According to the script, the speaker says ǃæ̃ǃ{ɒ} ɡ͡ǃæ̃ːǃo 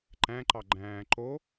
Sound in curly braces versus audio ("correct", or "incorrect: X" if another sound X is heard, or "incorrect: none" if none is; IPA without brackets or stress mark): incorrect: ɑ